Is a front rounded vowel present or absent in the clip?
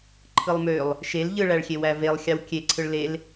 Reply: present